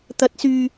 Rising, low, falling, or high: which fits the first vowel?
rising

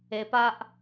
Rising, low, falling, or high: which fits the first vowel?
low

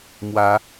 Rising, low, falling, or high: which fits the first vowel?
rising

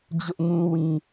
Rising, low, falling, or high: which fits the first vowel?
high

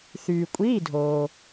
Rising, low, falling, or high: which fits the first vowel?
low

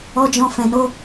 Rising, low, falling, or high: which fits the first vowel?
high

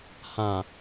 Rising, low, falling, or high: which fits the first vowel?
low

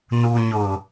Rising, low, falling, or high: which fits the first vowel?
low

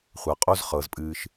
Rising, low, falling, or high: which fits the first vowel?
low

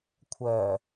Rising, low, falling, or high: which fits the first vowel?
low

